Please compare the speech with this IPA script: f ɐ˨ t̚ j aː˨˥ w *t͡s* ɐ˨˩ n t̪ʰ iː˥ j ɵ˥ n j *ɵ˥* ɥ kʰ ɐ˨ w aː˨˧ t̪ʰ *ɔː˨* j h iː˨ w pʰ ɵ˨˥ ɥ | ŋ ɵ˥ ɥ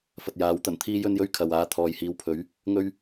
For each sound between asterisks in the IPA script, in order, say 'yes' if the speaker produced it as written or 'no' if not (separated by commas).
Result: no, yes, yes